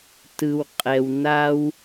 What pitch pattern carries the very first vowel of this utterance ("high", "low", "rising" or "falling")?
low